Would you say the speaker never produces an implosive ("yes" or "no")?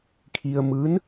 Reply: yes